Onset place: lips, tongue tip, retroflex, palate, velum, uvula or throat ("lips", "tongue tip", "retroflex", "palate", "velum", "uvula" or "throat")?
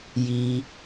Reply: palate